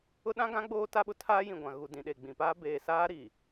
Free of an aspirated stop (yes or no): no